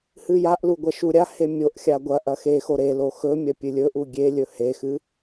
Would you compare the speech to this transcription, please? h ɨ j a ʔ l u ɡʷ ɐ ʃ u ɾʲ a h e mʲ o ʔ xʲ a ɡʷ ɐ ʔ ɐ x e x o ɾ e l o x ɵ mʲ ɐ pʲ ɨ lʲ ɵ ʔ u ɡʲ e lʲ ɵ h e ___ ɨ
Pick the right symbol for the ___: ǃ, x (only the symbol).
x